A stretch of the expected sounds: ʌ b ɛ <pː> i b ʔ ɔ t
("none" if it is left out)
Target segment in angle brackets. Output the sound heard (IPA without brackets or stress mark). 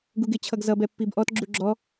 pː